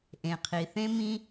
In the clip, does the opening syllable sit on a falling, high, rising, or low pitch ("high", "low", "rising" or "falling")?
low